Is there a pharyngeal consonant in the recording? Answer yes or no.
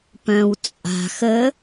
no